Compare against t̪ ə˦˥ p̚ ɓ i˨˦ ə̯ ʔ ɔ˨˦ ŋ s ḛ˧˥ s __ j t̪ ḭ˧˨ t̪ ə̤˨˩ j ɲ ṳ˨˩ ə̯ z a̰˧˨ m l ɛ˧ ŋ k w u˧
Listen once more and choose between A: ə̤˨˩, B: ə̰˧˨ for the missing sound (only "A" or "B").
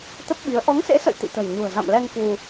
B